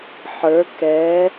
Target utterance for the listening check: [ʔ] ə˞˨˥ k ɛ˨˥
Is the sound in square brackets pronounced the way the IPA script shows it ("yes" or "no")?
no